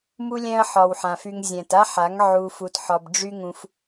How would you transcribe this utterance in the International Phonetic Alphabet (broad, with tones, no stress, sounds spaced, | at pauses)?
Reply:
m u˧ lʲ ɛ̃˧ ɐ̯ ħ ɒ˨ w ħ ã˨ f y˧ ŋ zʲ ɛ̃˨ t a˦ ħ a˨˦ ŋ ʕ u˧ f u˧ t ħ ɒ˧ b ɖ͡ʐ y˦ ŋ ũ˧ f